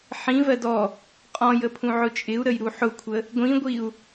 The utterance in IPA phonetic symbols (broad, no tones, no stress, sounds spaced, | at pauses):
ħ ĩ v ɜ d ɔ | qʼ ɔ̃ j ə pʰ ũ ʕ ʊ t͡ʃʼ ɪ u̯ ɾ ə j ɾ u ħ ʊ kʷʰ ə | ɡʷ ĩ ɡʷ i u̯